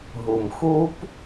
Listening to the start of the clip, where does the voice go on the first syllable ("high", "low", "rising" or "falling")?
low